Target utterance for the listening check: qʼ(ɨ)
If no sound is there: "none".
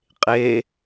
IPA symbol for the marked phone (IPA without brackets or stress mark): e